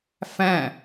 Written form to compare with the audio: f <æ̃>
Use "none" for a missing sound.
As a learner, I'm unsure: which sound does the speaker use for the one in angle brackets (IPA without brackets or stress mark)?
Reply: æ̃